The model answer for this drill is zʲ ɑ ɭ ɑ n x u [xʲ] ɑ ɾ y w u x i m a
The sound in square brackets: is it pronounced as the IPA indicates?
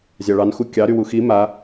no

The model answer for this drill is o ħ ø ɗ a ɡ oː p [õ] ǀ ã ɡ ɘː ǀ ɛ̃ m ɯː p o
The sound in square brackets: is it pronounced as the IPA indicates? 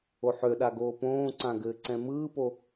no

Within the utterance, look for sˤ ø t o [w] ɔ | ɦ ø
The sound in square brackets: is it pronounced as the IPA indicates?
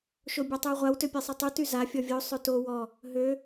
yes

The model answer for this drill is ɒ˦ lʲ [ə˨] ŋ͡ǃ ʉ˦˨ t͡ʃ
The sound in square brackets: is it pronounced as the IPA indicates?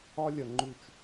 no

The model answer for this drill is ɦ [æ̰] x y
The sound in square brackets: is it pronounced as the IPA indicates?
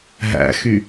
yes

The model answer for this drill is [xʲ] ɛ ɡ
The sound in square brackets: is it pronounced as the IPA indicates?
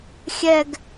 yes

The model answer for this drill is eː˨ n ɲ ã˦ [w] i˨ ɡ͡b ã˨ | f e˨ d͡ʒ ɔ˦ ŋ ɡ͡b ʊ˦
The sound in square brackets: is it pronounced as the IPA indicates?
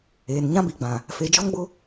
no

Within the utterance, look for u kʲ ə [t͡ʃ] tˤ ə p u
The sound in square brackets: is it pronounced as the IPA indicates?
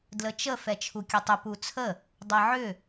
no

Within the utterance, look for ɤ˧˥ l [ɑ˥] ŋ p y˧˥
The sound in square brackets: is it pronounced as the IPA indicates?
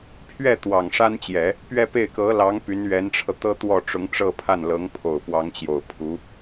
no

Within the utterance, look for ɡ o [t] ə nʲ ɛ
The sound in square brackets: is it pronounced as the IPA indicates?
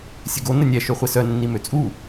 no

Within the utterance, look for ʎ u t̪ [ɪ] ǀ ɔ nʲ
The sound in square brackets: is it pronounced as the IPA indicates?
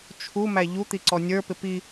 no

